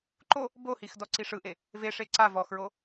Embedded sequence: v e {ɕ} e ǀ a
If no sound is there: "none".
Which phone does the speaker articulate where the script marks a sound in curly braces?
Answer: ʂ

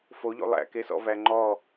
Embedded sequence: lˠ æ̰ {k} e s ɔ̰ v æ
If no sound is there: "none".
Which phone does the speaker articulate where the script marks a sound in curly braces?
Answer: k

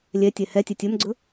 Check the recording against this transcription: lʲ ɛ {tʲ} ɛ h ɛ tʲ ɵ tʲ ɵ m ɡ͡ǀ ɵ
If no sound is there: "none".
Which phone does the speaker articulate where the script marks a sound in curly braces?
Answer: tʲ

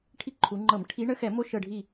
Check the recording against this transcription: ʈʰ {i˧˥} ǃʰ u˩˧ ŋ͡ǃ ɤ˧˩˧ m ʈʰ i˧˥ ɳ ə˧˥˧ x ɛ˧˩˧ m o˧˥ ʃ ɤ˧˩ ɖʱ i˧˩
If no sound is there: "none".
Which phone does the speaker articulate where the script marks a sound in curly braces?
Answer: i˧˥˧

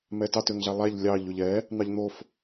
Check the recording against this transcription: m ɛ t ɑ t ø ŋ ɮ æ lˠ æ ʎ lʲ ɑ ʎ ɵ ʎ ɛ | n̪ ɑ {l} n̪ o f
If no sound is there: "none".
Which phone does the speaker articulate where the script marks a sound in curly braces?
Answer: ʎ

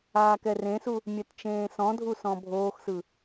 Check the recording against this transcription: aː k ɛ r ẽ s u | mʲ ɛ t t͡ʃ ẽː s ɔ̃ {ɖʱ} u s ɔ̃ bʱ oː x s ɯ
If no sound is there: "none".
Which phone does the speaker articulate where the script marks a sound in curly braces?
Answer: dʱ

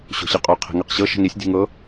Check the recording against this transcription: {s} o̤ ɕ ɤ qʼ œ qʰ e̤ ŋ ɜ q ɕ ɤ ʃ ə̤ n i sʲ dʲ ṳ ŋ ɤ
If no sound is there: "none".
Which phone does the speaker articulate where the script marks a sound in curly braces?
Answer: ɕ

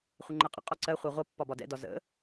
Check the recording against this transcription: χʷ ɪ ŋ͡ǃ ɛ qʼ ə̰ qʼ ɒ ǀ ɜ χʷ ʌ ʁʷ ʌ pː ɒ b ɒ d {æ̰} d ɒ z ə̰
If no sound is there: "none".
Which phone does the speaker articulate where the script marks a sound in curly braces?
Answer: ɛ̰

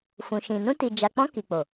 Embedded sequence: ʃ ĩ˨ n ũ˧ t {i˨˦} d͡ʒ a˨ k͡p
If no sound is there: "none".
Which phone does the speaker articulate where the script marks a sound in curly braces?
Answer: i˨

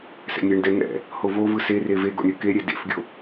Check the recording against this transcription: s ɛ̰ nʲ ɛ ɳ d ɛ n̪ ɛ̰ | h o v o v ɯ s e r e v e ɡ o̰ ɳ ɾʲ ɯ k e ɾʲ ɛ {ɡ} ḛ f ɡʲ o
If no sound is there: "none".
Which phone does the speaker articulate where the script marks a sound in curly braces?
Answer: d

